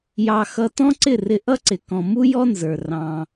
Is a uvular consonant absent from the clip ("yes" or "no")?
yes